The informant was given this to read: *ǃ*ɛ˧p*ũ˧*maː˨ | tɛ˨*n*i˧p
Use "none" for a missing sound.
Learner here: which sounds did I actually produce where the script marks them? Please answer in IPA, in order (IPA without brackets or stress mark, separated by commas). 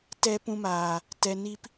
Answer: t, ũ˧, n